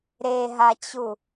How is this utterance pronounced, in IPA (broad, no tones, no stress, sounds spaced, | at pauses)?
ɾ e ɦ a t͡ɕ u